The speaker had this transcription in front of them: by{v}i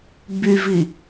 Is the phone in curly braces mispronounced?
no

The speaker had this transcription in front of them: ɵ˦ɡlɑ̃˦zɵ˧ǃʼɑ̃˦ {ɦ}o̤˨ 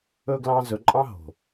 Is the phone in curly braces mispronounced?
no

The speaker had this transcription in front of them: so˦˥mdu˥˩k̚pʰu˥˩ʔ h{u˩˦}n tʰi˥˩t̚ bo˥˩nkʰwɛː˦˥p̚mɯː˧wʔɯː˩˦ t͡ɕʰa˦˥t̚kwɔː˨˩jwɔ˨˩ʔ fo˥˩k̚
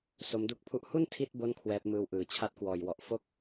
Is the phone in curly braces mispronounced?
yes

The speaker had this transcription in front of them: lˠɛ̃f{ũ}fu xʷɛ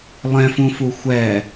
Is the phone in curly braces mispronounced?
no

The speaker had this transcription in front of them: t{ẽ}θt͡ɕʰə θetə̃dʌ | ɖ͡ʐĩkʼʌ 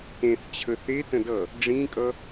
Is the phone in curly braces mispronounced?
no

